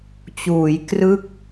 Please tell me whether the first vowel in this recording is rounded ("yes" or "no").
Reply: yes